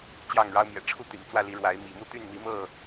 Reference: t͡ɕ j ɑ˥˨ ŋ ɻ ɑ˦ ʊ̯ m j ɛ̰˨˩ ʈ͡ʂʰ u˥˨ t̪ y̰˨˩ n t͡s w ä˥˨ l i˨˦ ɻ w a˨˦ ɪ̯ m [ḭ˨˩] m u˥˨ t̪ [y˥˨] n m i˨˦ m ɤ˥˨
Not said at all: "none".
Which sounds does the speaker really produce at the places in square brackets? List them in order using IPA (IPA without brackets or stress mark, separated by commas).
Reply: ḭ˨˩, y˥˨